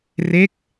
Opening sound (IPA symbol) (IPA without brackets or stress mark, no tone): r